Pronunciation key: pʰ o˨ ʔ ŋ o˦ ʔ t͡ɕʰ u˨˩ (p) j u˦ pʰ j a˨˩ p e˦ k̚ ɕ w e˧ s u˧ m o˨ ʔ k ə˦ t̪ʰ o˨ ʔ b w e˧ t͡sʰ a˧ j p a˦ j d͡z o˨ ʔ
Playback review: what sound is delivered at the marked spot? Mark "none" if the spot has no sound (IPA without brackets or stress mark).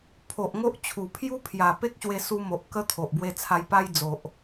pʰ